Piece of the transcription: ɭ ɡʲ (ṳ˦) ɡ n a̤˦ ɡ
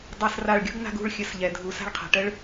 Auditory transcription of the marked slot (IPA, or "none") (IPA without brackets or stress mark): ṳ˦